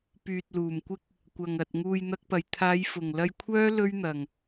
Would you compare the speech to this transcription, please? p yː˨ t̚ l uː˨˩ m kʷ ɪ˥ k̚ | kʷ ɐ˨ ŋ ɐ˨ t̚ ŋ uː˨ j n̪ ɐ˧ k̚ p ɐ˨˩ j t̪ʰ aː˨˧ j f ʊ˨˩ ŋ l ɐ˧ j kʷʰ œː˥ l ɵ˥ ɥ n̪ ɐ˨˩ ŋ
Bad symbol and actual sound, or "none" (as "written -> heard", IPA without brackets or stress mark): none